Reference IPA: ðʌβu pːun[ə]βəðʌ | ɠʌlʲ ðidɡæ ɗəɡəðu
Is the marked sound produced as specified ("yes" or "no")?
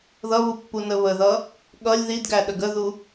yes